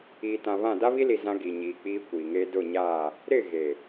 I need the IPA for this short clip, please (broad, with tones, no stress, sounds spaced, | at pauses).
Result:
iː˨ t ã˨ β ã˦˨ d a˦ β i˦ l i˨ z ã˦ ɡ i˨ ɲ iː˨ k͡p iː˦ kʷ iː˨ ŋ eː˦ d ʊ˦˨ ɲ aː˦˨ | ɾ ɪ˦˨ ɣ e˨